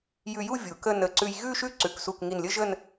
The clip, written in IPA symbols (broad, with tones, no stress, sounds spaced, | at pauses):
j ʉ˧ j u˥˧ vʲ u˩˧ k ə˥˧ n ə˧˩ ǀ ʉ˧ j ɣ ʉ˥ ʃ ʉ˥˧ ǀ ʉ˩˧ k s u˧˩ k ŋ i˧˩ n lʲ ə˥ ʒ ə˥˧ n